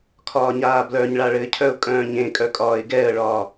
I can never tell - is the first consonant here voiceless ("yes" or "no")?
yes